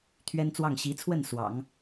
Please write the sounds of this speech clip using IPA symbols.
t̪ʰ ɥ ɛ˥ n t͡s w ɑ˥˩ ŋ ɕ i˧˥ t͡sʰ w ə˥˩ n s w ɑ̰˨˩˦ ŋ

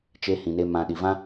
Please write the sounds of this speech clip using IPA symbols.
t͡ʃ e˧ h ĩ˨ n e˧ m ã˨ ɗ i˨ v ã˦

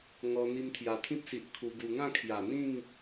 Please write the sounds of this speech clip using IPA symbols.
ŋ ɔ˧ n̪ i˧ m t̪ʰ j a˨˩ t̪ʰ ĩ˦ p̚ s i˨ ʔ kʰ u˧ ɡ u˧ ŋ ã˥˧ kʰ j a˨˩ n̪ ĩ˥˧ ŋ

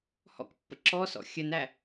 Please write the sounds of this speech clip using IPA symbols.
h ɔ̰ k pː ə̰ ǁ ɔ s ɔ̰ xʲ ə n æ

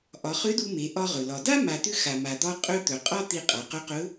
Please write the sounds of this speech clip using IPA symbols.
ʔ ɒ˩˧ χ ʏ˧˥ d u˧ m e˩˧ ʔ ɒ˧ ʁ ɵ˩ l ɒ˩ d a˥ m a˧ t̪ ʏ˥ x a˩ m a˩ d̪ ɒ˧ qʼ ɵ˧ t̪ ɵ˩ qʼ ɒ˥ t̪ i˧ qʼ a˩˧ q ɵ˧˥ q ɵ˧˥

